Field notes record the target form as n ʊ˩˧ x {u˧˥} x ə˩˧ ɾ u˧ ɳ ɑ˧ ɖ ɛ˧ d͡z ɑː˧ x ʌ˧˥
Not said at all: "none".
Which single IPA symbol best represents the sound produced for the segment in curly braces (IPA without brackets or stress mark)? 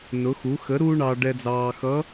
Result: u˩˧